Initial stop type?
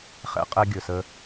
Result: ejective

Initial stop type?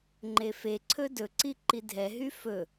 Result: click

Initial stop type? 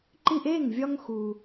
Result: click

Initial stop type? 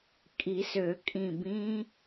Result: ejective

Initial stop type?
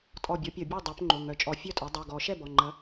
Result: ejective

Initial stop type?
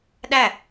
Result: implosive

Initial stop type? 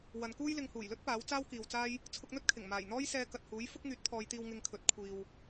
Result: plain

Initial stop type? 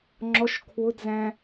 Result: click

